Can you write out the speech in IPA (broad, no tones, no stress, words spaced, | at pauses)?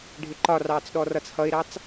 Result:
ɖʱɪǃɒrɑːt͡sɗɔ rʌt͡shʌɪ̯ɾɑt͡s